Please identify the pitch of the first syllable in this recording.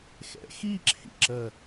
rising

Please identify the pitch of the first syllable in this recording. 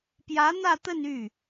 rising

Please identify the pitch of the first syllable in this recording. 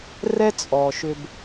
high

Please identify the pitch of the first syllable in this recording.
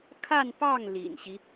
falling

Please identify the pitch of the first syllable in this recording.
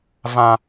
high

